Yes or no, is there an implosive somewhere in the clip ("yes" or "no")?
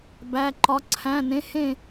no